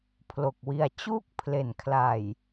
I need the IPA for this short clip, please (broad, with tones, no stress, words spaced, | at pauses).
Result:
pʰlo˨˩k̚wi˧a̯ t͡ɕuː˥˩k̚pʰle˨˩nkʰla˨˩j